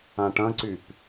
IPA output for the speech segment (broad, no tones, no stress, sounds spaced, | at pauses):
ã ʈ ɐ̃ ǀ y p